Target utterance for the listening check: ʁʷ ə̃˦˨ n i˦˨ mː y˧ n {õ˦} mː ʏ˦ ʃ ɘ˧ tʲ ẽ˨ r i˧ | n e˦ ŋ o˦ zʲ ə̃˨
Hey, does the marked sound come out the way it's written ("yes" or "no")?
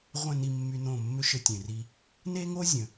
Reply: no